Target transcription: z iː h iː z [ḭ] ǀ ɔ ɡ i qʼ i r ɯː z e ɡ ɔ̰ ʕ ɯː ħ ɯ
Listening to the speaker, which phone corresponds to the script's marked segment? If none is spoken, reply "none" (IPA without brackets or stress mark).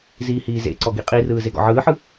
ḛ